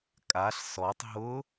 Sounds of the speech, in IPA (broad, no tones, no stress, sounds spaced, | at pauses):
kʼ a ɬ s ɔ tˤ ɦ ʊ